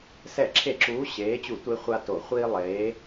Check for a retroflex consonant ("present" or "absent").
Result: absent